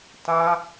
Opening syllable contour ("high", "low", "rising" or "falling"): high